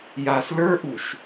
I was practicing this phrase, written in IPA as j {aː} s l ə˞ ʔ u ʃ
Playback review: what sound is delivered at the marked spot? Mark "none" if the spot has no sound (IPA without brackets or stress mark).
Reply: aː